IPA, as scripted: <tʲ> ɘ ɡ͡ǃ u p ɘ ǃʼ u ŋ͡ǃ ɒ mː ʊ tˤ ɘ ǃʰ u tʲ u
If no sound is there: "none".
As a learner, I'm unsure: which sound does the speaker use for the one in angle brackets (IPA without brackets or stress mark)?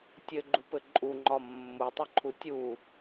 tʲ